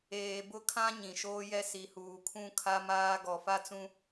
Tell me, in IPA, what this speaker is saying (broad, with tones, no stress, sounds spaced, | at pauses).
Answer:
eː˨ b ʊ˦ kʰ ã˦ ɲ ĩ˨ ʃ oː˦ j ɛ˦ s i˨ h uː˨ kʰ ũ˦ kʰ a˦ m aː˦ ɡ ɔ˨ f a˦ t͡s ũ˦